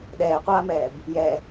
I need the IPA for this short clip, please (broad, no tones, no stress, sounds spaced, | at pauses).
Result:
ɗ ɛː qʷ aː m ɛː b | j ɛ